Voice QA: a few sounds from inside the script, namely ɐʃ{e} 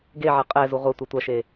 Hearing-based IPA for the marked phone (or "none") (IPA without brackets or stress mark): e